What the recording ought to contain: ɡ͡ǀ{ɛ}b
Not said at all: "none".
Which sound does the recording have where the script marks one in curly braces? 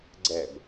ɛ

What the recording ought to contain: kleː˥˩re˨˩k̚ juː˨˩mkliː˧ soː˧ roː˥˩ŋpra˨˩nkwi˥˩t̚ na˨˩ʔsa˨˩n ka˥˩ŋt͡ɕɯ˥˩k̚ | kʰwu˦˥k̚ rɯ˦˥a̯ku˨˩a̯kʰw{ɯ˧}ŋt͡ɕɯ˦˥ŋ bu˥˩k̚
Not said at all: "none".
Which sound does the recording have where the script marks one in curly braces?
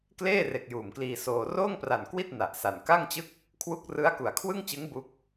ɯ˥˩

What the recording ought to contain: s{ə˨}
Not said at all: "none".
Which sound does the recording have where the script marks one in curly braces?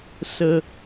ə˨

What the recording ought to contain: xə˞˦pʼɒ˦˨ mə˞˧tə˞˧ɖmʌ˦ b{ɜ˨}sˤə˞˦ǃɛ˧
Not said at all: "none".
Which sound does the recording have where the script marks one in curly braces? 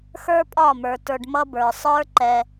ə˞˨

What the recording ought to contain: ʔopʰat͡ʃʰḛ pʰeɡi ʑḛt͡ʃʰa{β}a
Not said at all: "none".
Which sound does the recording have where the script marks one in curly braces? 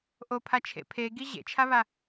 β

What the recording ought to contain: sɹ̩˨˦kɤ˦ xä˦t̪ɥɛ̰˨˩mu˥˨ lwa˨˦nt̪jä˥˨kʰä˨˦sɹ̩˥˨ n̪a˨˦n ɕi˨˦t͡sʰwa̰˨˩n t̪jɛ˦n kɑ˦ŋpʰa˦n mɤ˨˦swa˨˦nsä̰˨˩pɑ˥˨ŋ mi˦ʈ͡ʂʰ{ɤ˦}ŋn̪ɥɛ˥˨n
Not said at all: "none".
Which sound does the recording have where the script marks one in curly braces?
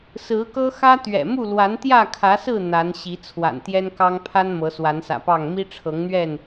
ɤ˨˦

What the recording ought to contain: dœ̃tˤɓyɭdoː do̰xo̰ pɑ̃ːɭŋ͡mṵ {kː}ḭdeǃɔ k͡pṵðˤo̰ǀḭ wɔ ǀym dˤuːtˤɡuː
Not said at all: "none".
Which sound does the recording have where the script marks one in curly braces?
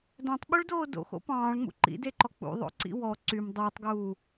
ǃ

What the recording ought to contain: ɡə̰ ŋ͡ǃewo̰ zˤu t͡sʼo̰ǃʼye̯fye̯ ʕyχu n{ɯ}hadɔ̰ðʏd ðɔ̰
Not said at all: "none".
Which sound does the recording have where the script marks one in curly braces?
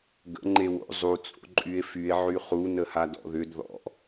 ə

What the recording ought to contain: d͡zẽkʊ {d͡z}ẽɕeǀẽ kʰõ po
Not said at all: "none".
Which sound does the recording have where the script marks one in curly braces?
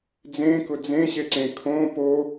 d͡z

